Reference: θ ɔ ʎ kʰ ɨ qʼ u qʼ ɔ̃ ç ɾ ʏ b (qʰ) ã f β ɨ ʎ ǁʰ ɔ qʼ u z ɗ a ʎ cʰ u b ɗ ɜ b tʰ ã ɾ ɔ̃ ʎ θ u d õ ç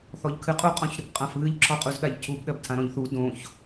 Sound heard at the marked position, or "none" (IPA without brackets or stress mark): qʼ